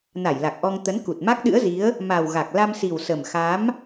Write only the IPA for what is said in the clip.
na˧˩jla˨˩k̚ʔɔ˧ŋ t̪ə˨˦nku˨˩t̚ ma˦˥k̚ɗɨ̰˧˥ə̯zi˨˦ə̯ | ma˨˩w ɣa˨˩k̚ la˧msi˨˩wsə˨˩m xa˨˦m

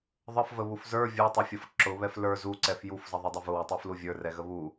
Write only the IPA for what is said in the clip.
ðˤəfvəβuf zə˞ vʲə˞tˤɛfʲʌf ǁʊβɛf lə˞ zuǀɛf jufzʌðˤʌdˤə vʊwətˤuflu vʲə˞rɛɣə βu

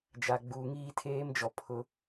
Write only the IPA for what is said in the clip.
d͡ʒa˨ɡ͡buː˨ŋiː˦ tʰeː˦md͡ʒɔ˨ pʰʊ˦

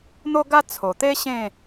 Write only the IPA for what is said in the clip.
n̪o˦ɡa˦ t͡sʰo˨˩t̪e˦ ɕẽ˥˧

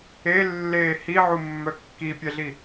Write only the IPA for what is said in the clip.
elːeː hiʕumːœ kːipʲɛɮi

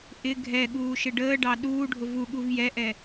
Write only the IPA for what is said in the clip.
ʔɪ ɡʱɛɠuː ʃɪɖəːɖɑ ɗuː ɖʱʊvuɠuv jɛʔɛ

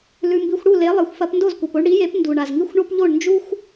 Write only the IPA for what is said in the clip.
lʉ˧mbi˧xʷ ɽu˥˩le˩˥lˠi˩xʷ fɐ˧p ndo˥˩zkʷe˩po˧ɳ ɽi˩˥ je˩˥pndu˩ɳa˩z ŋi˧xʷɳo˧p ʎo˥˩ɳnd͡ʒu˥xʷ

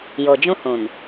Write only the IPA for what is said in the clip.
jo˨d͡ʒũ˦hũ˨n

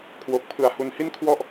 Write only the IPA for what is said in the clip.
kʰwo˨˩k̚pʰɯ˨˩a̯ hu˧nhi˥˩nkʰwɔ˥˩ʔ

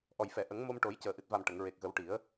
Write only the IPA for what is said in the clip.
ʔɔ˨˩jfɛ˨˩˨ ʔə˨˩˦ŋmo˧mʈo˨˩˦jcəː˨˩ ʔɨ˨˩t̚va˨˩m ʈə˨˩˨ŋɹe˨˩k̚ɣə˨˩˦w ʈi˨˩˦ə̯

